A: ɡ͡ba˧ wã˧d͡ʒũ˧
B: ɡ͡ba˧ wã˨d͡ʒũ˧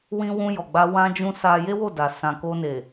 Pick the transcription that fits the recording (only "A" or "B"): A